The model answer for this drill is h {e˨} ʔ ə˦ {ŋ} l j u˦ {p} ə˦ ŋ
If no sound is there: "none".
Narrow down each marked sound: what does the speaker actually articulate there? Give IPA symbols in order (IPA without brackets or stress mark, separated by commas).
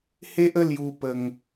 e˦, none, p